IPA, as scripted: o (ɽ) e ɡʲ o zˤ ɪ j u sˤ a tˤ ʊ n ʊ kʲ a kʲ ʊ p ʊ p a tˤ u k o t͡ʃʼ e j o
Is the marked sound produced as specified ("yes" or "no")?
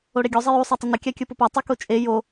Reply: yes